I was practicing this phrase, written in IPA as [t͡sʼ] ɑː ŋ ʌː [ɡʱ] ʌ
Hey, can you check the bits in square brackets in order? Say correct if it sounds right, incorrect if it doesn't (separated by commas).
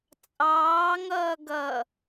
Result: correct, incorrect